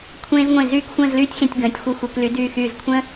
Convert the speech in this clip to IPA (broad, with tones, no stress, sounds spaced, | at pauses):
kʷʰ ẽː˧ z ŋʷ ẽ˧˩ z yː˥˧ k xʷ ə̃ː˥˧ z l yː˥ tʲ x ẽ˧ tʲ ɡ ə̃ː˩˧ tʲ xʷ i˧ xʷ e˩˧ k l y˩˧ d yː˧˩ x yː˧˩ z kʷʰ ə̃˥